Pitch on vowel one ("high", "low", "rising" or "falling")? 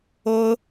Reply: high